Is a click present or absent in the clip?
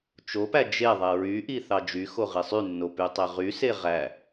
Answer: absent